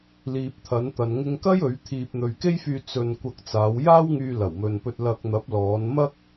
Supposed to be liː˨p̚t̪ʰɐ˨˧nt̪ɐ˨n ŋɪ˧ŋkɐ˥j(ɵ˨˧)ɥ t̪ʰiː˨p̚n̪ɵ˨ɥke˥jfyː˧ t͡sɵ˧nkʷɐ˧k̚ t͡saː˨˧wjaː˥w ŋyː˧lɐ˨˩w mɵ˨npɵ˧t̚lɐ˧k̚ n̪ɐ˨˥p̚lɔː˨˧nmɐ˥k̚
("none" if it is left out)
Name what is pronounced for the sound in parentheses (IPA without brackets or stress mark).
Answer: ɵ˨˧